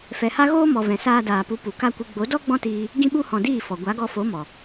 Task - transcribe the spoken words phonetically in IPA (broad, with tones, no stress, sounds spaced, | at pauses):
f ɛ˨ h a˦ ɣ oː˦ m ɔ˨ v ɛ̃˨ s aː˧ d aː˨ p u˨˦ p u˨ k a˦ kʷ ɨ˧ ɡ͡b o˨˦ d ɔ˦ ɡ͡b ɔ̃˦ t iː˧ | ɡ ĩ˧ ɓ u˧ h ɔ̃˨ d iː˦˨ f ɔ˨ ɡʷ a˨˦ ɡ ɔ˧ f o˨˦ m ɔ˨